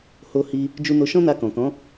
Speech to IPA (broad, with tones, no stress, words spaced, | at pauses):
ho˧hi˧ | d͡ʒu˧no˧ʃɔ̃˦na˧ kɔ̃˨kɔ̃˨˦